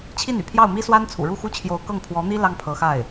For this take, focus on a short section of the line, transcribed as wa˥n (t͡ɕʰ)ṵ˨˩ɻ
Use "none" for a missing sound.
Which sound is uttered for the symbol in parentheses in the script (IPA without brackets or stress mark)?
t͡sʰ